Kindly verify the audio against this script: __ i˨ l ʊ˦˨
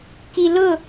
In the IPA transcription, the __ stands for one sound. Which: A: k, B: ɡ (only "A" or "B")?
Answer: A